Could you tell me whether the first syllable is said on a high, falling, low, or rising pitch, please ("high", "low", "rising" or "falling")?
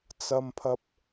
low